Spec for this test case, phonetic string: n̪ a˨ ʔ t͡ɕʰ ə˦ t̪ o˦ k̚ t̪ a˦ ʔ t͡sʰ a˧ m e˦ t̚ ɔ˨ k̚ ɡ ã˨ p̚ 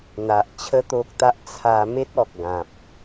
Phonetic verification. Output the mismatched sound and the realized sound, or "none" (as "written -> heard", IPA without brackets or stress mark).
none